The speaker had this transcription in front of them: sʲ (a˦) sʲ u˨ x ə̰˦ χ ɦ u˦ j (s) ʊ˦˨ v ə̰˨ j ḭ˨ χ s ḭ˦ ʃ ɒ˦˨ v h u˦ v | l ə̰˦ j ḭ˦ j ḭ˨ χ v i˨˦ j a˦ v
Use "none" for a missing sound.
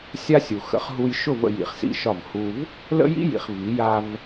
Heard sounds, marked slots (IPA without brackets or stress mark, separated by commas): a˦, ʃ